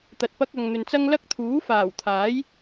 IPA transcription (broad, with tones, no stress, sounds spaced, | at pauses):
t̪ ɐ˧ t̚ p ɐ˧ k̚ ɐ˨ ŋ n̪ ɵ˨ n t͡s ɐ˥ ŋ l ɐ˥ k̚ t̪ʰ uː˨˥ f aː˨˩ w t̪ʰ aː˨˥ j